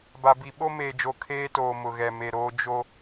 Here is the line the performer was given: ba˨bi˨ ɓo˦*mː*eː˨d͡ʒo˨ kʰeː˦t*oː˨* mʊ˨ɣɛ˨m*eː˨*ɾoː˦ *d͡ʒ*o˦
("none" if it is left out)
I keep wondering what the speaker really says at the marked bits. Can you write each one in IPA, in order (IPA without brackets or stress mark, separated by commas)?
m, oː˨, e˨, d͡ʒ